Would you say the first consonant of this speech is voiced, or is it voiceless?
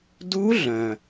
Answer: voiced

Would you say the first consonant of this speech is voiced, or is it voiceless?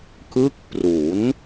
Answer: voiceless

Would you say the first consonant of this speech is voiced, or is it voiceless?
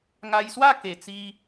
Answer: voiced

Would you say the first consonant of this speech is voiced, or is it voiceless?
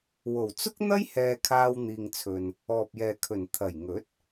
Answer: voiced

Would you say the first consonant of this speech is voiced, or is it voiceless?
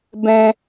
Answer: voiced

